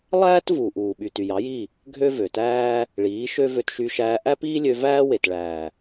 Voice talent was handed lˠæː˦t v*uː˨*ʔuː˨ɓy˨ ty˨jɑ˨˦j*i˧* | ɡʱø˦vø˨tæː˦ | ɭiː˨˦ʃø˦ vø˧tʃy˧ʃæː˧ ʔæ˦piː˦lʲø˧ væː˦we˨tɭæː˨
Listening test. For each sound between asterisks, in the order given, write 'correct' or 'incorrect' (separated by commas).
correct, incorrect